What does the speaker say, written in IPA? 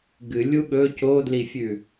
ɡɨlʲu ɠɵ codlifʲʉ

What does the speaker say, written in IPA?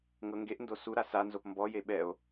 ŋɤŋɡeʔndo suɾa sanzop mbɔje ɓɛo̯

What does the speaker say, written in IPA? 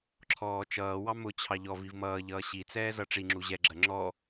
ǁʰɔːt͡ʃʌːwɑ mʊt͡ɕʰɑ ʎɔ vivmʌːʎʌː ɕit͡sɛː zʌʈ͡ʂiŋ͡ǁu ʑɛɡ͡ǁɜ ŋ͡ǁɔ

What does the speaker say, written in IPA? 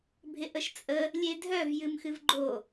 bʱɪʔəʃt͡sʼə | lʲedʱœv jɨmxɨvɡ͡ǃo

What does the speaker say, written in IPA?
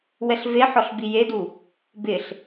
wɛɬveħɔɬ bijedu | bɪɬ

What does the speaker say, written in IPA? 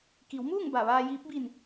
ki˩˧wmuː˥˨ŋ ba˧˩ʋaː˧jiː˧˥p̚ bi˧˩n

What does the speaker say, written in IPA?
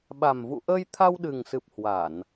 ɓa˨˩mvṵ˧˨ ʔəː˧jt̪ʰa˧wɗɨ˨˩ŋsɨ˨˩p̚ hwa˧˩˨n

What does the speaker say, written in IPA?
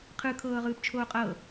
qʰɯ kʰɤːʁɯːpt͡ʃʰoːqʼɤ

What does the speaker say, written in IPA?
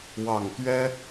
wɑ˨˩ŋt̪ɥɛ˦

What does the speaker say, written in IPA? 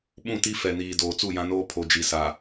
ɓũ˦˨ti˦ fɛ˨niː˨ doː˨t͡su˦˨jã˦noː˦ pʰo˨d͡ʒi˨sa˨

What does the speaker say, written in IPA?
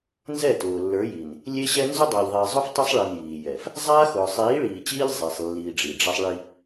nzɛ˦˨tʊː˨ lːə˞˨˦ji˨n | lʲe˦ɕɛ˦ nzʊ˦dˤa˨ʎ ðˤiː˨zˤʊ˦f tˤʊ˦sˤɭi˨n jiː˨ jɛ˨f | zˤaː˦xʊː˨ sˤiː˨˦ɭiː˨ t͡ɕiː˦ʎ zˤe˨sˤlːiː˨ ɖ͡ʐi˨ɖ͡ʐɛ˦sˤ ɭi˦

